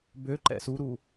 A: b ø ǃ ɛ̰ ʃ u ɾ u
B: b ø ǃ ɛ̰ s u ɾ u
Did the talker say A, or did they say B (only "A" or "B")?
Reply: B